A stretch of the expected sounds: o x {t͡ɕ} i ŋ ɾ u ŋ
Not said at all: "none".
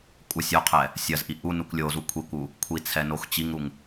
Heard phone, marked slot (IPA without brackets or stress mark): t͡ɕ